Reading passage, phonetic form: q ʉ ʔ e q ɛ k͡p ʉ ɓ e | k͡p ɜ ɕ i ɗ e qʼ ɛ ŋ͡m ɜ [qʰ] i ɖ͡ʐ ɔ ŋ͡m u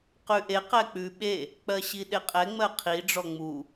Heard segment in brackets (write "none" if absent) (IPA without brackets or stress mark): qʰ